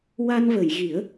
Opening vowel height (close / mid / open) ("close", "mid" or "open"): open